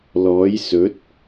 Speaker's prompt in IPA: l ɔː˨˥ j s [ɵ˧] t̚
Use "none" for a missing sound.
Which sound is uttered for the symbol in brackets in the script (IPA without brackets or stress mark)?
ɵ˨˥